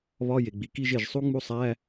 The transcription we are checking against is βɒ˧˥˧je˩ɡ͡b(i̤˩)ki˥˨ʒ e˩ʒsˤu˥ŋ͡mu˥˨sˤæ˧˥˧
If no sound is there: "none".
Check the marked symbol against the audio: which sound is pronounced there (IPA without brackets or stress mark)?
i˩